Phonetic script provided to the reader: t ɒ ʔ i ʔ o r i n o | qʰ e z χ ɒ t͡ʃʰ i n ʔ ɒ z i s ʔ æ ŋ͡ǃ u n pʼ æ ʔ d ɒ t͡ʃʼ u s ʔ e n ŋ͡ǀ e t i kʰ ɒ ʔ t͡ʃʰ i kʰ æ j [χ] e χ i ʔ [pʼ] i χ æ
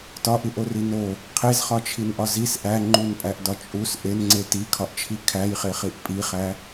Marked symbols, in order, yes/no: yes, yes

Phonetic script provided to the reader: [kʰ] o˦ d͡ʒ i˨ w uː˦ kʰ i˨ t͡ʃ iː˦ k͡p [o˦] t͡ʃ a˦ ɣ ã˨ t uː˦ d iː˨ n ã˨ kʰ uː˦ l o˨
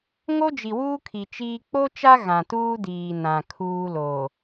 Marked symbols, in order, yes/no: no, yes

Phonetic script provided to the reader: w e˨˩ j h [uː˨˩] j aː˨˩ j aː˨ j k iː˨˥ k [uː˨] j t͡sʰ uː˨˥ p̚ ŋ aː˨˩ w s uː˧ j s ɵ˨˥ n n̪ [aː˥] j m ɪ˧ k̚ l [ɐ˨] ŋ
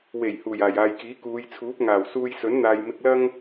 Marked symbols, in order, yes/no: yes, no, no, no

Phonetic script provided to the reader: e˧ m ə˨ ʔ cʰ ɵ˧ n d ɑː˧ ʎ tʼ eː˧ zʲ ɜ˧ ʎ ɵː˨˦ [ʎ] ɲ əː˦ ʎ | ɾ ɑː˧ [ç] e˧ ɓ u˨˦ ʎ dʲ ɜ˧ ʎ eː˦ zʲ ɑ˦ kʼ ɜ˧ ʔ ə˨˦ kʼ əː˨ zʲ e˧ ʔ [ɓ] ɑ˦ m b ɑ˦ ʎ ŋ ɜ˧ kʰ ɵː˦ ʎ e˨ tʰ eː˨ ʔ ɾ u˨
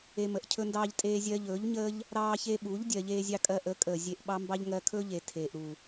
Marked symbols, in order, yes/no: yes, yes, yes

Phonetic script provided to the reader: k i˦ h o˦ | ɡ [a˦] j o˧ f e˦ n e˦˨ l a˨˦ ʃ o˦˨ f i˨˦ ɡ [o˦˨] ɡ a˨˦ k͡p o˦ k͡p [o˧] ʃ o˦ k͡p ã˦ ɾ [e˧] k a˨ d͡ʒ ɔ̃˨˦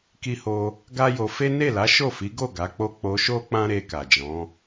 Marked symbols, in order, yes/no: yes, yes, yes, yes

